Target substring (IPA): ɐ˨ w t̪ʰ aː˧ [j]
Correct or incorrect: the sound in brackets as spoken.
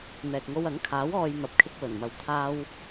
incorrect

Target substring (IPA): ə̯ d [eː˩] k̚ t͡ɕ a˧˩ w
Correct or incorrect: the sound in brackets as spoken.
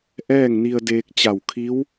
incorrect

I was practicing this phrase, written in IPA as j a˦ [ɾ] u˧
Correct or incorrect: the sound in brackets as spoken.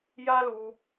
incorrect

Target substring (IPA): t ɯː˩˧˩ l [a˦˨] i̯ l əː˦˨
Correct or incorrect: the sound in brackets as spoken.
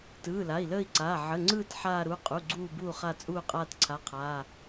incorrect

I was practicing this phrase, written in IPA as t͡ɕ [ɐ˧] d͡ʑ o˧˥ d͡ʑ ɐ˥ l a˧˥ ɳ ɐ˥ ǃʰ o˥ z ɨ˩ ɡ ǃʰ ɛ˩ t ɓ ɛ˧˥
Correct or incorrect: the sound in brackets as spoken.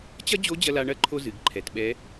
incorrect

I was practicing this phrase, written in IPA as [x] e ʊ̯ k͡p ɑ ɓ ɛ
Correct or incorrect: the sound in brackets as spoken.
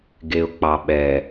incorrect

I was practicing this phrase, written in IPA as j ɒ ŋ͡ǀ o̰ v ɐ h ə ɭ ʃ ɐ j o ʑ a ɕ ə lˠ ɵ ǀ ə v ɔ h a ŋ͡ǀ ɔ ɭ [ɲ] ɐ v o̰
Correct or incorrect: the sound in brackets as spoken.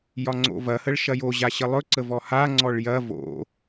incorrect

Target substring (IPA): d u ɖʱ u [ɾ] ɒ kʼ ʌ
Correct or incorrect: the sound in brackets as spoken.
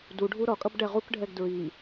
correct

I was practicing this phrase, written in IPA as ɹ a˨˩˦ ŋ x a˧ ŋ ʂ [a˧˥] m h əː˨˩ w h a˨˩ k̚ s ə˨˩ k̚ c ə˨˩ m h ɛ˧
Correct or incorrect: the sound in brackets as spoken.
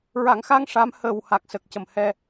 correct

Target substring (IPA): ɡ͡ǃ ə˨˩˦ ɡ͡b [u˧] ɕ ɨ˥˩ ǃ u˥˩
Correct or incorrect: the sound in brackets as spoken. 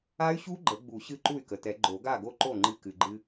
incorrect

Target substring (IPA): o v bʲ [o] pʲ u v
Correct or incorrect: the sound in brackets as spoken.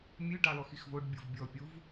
incorrect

